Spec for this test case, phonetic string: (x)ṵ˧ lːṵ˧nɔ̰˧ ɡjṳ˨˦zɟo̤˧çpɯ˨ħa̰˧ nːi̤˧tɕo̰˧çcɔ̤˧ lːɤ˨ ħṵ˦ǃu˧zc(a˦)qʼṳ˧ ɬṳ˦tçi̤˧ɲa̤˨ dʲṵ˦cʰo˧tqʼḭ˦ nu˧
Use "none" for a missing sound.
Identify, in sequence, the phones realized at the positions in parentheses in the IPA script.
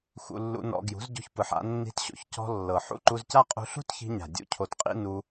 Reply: x, a˦

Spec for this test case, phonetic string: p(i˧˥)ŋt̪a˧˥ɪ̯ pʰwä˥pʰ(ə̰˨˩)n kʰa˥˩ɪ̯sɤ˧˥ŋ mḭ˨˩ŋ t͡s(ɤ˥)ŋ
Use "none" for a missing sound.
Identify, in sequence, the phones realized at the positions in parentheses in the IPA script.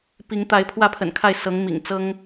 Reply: i˧˥, ə̰˨˩, ɤ˥

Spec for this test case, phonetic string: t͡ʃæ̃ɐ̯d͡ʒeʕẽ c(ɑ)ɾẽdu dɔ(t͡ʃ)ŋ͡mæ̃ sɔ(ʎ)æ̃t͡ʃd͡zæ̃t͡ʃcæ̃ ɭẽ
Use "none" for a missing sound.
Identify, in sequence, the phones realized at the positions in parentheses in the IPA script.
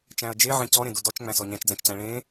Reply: ɔ, t͡ʃ, ɲ

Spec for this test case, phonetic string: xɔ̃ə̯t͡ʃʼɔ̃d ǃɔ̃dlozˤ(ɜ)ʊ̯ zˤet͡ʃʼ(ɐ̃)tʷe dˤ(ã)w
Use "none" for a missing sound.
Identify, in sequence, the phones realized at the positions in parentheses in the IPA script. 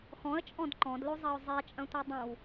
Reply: ɜ, ɐ̃, ɐ̃

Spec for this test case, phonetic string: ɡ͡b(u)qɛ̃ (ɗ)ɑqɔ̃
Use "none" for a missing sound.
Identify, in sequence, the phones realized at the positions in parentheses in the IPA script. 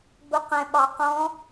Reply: u, ɓ

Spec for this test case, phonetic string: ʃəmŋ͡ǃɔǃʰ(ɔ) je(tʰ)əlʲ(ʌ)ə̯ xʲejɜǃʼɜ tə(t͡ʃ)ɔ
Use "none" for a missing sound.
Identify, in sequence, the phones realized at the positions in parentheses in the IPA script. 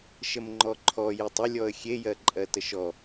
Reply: ɔ, tˤ, ɔ, ʃ

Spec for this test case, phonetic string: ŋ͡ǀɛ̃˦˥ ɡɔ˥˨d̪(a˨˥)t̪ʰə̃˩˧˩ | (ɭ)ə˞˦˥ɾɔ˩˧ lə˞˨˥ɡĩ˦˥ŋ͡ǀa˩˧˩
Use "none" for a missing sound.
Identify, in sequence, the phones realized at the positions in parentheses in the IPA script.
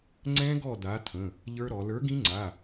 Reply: a˨˥, ʎ

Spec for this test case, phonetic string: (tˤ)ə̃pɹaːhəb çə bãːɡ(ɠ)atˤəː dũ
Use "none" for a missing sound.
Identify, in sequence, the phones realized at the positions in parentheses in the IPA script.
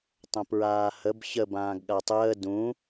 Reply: tˤ, ɠ

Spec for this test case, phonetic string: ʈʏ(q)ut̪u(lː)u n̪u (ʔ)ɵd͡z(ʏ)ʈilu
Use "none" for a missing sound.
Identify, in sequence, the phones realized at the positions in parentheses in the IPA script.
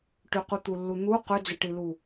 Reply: q, lː, q, ʏ

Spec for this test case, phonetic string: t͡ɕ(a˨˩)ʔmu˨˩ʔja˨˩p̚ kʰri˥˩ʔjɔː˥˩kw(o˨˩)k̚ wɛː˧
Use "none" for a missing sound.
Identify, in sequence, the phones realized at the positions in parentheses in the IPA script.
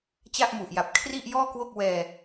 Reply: a˥˩, o˥˩

